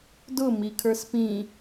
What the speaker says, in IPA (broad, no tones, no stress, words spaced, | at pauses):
dʊ mikʰə˞spĩ